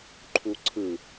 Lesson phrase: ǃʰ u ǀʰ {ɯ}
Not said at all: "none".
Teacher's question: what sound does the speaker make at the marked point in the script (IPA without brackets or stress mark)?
ɯ